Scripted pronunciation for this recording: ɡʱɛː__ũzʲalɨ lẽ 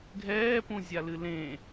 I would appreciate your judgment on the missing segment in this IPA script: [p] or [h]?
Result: p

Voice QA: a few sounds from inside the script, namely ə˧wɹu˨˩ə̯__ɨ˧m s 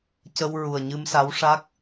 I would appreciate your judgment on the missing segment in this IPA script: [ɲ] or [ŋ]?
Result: ɲ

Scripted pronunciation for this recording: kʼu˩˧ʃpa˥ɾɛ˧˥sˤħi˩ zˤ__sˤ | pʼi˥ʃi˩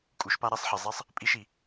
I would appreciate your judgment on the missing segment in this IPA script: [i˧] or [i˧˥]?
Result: i˧˥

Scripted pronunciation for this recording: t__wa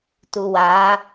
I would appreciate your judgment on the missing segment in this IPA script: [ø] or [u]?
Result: u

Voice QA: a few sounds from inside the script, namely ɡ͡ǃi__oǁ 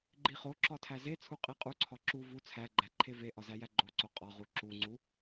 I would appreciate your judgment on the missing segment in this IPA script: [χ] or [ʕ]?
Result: χ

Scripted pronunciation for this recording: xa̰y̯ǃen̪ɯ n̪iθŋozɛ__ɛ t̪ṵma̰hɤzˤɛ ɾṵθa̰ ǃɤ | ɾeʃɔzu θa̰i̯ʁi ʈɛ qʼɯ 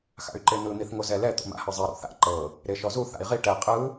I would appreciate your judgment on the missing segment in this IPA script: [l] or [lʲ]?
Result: l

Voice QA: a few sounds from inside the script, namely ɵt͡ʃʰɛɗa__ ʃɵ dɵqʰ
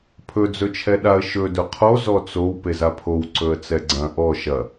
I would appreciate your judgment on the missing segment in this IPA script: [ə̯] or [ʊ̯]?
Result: ə̯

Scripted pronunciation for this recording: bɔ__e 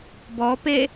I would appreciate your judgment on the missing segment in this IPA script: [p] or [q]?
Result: p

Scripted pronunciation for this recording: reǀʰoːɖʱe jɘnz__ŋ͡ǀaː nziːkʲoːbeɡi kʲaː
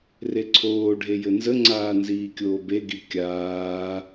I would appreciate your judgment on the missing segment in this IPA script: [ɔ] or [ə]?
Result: ə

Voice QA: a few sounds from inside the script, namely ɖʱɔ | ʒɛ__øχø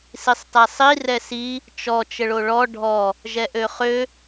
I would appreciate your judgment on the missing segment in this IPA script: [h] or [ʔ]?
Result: ʔ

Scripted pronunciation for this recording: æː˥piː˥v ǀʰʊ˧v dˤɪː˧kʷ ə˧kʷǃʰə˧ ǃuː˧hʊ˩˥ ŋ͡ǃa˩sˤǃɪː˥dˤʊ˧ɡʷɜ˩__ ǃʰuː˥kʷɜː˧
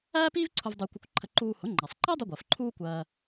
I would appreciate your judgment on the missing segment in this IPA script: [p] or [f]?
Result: f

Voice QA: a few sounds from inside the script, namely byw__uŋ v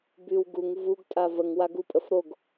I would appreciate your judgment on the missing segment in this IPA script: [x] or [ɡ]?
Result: ɡ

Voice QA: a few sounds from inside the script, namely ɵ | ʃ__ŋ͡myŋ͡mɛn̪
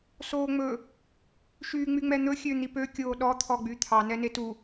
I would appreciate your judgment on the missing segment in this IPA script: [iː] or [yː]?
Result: yː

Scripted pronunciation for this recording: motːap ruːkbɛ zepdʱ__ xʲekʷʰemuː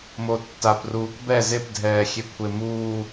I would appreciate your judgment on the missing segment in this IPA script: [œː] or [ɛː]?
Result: ɛː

